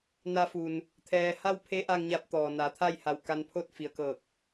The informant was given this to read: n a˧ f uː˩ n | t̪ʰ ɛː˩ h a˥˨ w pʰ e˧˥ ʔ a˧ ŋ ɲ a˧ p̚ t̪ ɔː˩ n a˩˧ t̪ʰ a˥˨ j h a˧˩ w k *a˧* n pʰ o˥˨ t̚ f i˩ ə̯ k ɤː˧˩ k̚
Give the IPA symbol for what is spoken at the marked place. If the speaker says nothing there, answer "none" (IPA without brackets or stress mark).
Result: a˧